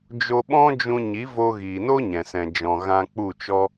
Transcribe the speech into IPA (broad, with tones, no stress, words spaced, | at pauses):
d͡ʒo˧ɓɔ̃˦d͡ʒũ˧ ɲi˨˦vo˧ ɣiː˨no˦ ɲɛ̃˨sɛ̃˨ d͡ʒɔ̃˨ ɣã˧k͡pu˦˨t͡ʃɔ˦